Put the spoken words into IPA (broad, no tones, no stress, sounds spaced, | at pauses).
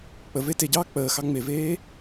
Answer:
k͡p ə v e t e ɟ ɑː k͡p əː x ɑ ŋ͡m e v eː